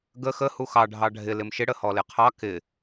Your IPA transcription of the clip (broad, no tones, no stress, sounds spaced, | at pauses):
ɡ ə x ə h u x ɑ ɖʱ ɑ ɖʱ ɪ l ɪ m ʃ ɪ ɽ ə h ɔ l ɪ qʰ ɑ k ɪ